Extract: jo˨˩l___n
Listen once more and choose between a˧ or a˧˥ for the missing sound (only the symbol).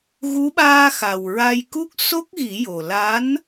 a˧˥